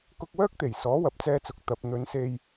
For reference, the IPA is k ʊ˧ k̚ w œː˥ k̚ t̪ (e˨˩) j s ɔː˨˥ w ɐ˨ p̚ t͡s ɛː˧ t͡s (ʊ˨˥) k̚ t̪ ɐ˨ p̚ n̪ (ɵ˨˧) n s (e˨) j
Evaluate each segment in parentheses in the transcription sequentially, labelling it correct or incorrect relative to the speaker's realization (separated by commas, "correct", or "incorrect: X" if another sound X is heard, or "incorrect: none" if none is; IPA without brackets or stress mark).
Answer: correct, incorrect: ʊ˨, correct, incorrect: e˧